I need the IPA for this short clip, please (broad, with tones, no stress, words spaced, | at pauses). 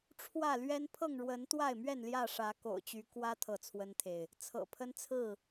ʈ͡ʂʰwä˥˨lɥɛ˦n pʰɤ˥˨ŋɻwə˨˦n t̪wa˥˨ɪ̯mɥɛ˥˨n ljä˥˨ʂä˨˦ ko̰˨˩ʊ̯t͡ɕy˨˦ kwä˦ t̪ʰɤ˥˨t͡sʰwə˦nt̪ʰe˨ɪ̯ | t͡sʰɤ̰˨˩pʰə˦nt͡sʰɹ̩˥˨